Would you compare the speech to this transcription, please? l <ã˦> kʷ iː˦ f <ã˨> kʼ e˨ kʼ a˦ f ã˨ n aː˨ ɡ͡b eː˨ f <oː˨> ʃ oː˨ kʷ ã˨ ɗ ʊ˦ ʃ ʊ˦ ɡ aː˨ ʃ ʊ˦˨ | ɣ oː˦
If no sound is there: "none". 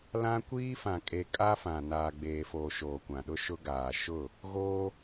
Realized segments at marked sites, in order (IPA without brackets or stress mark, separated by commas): ã˦, ã˨, oː˨